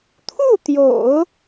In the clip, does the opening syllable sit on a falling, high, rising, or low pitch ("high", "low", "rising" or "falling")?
falling